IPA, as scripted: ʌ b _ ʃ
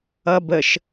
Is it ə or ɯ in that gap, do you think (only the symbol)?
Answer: ə